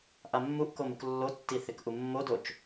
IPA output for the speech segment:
ʔamːuʔkom uklːotːi θɪkʔumːodot͡ʃ

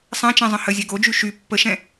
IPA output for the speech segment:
sˤɛ̃t͡ʃɛ̃zˤə̃ həzʲɛ ɡod͡ʒy ʃy pːəʃɛ̃

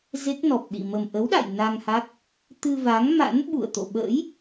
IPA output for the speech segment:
ze˦˥k̚nɔ˨˩p̚ɗḭ˧˨ mə˨˩mʔə˨˦wɗa̰˧˨j na˧ŋha˦˥k̚ | t̪ɨ˧va˨˦ŋma̰˧˥n ɓṵ˧˨ə̯t̪o̰˧˨ ɓə̰ː˧˥j

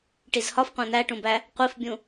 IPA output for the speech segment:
ʈizhɒfqʷæ̃ n̪æʈũbæ | qʷifbʲũ

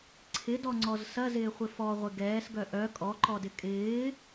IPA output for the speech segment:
ǀʰɪdɔŋ͡ǀɔz sɐzɪːχʷɪ fɔʁʷɪ ɡɛːsɡœ ʔœ kʼɔǃɔdɪ kʼɪː

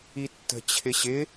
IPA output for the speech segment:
itːə̤ t͡ɕʰɪɕɪ

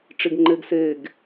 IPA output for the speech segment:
ʈ͡ʂiɡŋ͡ǃeɡseɡ

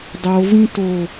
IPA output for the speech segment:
dˤo vĩto

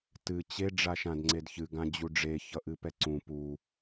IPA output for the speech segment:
tɨ t͡ɕe ɖ͡ʐaʃãdŋ͡ǀedçɨ ɡãd͡ʑuɖ͡ʐe çʌʔɨpɛǀũ pu

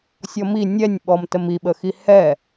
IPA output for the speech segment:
sʲɔmi nʲɛnʲɓɔmtəm iɓəxi hɛ

